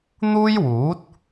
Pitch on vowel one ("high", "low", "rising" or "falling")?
high